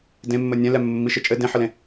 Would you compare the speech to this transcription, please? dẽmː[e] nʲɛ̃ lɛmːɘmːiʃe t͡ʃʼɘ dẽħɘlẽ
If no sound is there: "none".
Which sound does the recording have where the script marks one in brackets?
ɘ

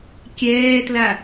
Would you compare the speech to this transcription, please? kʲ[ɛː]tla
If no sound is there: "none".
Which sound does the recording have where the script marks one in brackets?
ɛː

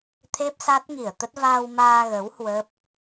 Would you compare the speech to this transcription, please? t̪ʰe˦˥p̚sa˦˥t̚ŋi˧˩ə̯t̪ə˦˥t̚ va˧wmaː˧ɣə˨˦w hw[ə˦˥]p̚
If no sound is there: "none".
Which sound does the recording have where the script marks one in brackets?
ə˦˥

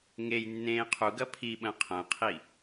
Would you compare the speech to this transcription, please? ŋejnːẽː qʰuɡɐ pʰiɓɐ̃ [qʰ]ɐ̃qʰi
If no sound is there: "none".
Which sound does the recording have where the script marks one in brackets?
qʰ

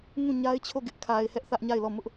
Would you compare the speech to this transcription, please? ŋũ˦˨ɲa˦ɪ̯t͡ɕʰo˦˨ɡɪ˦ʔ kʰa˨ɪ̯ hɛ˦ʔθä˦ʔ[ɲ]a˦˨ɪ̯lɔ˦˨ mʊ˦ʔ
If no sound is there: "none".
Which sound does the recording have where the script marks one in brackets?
ɲ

